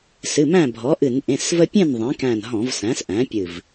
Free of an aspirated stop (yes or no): yes